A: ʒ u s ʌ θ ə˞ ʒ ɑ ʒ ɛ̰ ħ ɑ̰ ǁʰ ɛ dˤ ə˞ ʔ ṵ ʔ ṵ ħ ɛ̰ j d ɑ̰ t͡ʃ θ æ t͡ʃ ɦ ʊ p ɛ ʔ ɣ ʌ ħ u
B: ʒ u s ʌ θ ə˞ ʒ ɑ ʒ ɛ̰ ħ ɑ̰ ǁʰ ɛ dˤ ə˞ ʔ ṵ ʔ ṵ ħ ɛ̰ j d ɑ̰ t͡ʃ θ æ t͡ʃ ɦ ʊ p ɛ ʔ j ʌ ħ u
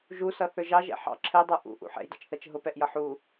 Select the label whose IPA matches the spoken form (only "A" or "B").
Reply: B